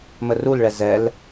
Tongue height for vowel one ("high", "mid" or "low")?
mid